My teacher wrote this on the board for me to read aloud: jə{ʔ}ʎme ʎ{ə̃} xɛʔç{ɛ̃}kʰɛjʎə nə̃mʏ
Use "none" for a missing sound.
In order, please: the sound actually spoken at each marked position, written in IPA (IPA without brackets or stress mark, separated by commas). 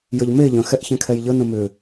none, ə̃, ɛ̃